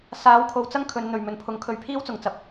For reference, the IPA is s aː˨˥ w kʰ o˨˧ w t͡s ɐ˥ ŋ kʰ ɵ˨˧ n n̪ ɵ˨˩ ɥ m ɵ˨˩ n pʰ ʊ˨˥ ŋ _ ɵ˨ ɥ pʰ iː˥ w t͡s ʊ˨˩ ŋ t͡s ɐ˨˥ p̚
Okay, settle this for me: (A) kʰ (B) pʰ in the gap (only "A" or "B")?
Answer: A